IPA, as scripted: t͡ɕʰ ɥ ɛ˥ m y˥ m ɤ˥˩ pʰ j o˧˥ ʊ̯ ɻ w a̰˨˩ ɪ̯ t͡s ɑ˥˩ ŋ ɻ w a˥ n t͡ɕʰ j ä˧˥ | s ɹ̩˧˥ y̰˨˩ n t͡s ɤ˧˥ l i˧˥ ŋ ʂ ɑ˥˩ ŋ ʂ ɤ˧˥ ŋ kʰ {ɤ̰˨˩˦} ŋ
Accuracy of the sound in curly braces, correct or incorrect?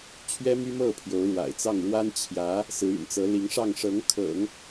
correct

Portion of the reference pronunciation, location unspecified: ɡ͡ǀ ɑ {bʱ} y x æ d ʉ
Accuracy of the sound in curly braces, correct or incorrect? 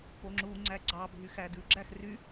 correct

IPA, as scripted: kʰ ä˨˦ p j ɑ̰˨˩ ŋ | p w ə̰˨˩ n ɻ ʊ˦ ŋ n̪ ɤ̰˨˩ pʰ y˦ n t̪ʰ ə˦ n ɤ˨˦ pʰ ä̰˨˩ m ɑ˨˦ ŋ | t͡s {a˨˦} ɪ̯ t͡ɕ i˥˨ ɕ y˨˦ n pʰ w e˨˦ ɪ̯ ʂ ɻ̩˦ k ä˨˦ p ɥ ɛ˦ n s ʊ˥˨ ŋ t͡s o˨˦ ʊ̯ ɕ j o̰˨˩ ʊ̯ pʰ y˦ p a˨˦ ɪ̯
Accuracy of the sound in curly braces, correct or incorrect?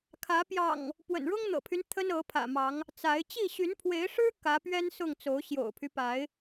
correct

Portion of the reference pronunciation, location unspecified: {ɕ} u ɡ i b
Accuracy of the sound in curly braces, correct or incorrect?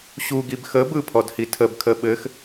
correct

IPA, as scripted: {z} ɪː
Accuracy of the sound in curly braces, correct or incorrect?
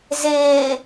correct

